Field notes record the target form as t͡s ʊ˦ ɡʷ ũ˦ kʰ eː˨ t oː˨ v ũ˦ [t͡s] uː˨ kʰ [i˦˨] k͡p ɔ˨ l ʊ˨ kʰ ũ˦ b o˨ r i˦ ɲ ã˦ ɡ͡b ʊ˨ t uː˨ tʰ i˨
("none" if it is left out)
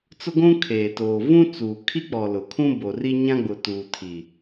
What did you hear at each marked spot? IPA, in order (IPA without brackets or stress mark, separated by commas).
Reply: t͡s, i˦